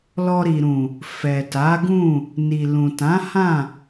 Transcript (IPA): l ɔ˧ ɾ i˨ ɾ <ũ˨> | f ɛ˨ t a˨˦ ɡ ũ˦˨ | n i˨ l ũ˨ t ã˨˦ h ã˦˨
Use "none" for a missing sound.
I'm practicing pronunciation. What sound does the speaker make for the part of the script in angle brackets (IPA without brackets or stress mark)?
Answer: ũ˨